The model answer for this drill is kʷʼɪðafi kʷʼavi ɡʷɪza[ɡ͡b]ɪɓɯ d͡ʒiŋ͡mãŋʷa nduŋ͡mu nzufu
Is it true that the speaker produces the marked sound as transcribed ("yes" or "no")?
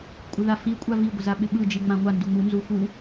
no